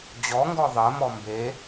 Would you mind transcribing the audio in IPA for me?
d͡ʑ ɔ ŋ ɡ ɔ ðˤ ɜ m ɔ m b e

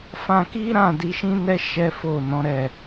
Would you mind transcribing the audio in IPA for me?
f ã˧ k i˦ ɾ ã˦˨ d i˨˦ ʃ ĩ˦ n ɛ˦ ʃ ɛ˦ f o˦˨ n ɔ̃˨˦ ɾ ɛ˦˨

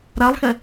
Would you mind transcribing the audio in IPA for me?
ɾ a lˠ x ɛ

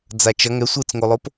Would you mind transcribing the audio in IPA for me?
d͡z a t͡ʃ ʌ ŋ ɛ sʷ ɯ t͡s ŋ o lˠ o p

